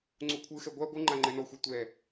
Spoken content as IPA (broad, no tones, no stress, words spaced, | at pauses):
ŋ͡ǀukʷʰɯxɛ ɡʷa ɡʷɯŋ͡ǃa ŋ͡ǃɛnɔxʷɛ tʷɛ